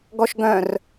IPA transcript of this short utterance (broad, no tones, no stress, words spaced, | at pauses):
ɡɔʃɡœ̃r